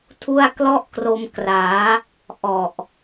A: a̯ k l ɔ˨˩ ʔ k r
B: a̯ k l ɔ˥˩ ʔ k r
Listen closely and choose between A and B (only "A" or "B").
B